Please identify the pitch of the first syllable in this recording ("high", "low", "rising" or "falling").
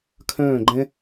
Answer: falling